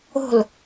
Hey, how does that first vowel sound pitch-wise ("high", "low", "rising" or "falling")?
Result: falling